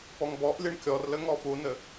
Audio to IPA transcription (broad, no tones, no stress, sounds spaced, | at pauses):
p ɔ ŋ b ɔ ʔ lʲ ɨ ɳ kʲ ɔ r l ɘ ŋ ɔ f u n ɘ